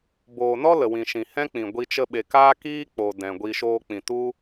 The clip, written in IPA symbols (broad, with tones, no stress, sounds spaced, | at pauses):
b oː˨ n ɔ˦ l ə˨ w ĩ˨ ʃ ĩ˨ h ɛ̃˦ k͡p ĩ˨ ɡʷ i˧ t͡ʃ ə˧ ɓ e˨ k aː˦ k iː˦ k͡p o˨ d ɛ̃˨ ɡʷ i˧ ʃ oː˧ k͡p ĩ˨ t u˦